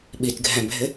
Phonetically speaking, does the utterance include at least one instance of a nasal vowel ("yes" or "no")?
yes